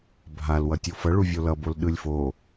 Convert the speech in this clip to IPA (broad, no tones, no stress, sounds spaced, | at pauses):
bʱ a l w ʌ tʲ o f ʌ ɭ u vʲ o l ʌ b o l ɗ ɯ lʲ f o